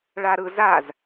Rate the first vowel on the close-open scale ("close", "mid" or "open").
open